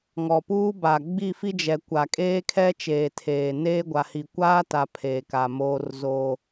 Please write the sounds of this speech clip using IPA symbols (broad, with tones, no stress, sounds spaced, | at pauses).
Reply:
ŋ ɔ˨ p uː˦ b a˨ ɡ͡b i˦˨ f i˦ d͡ʒ ɛ˨ kʷ a˨ kʼ eː˦ kʰ ɛ˦ t͡ʃ eː˨ tʰ eː˨ n eː˦ ɡʷ a˨ h i˨ kʷ aː˦ t a˨ pʰ eː˨ k a˨ m oː˦ r z o˦